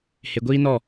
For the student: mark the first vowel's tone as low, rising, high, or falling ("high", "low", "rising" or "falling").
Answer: low